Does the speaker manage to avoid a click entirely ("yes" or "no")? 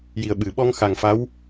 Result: yes